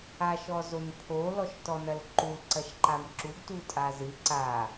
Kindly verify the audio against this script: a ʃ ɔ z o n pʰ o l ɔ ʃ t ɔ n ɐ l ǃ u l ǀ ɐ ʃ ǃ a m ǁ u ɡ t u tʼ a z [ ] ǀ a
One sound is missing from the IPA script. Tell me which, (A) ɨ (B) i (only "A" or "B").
A